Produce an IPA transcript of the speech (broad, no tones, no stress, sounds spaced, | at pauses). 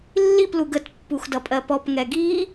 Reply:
lː i p l u ɡ ə t pː u x d ʌ pʼ ɜ p ɔ p ŋ ɛ ɡ i